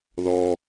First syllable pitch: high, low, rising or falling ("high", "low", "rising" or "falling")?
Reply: high